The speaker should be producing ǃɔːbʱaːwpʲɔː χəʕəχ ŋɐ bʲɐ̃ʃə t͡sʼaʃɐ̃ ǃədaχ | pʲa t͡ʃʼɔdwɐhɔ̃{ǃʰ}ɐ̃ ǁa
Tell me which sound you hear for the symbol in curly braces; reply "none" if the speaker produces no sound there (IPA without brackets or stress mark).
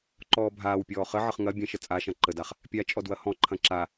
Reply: ǃʰ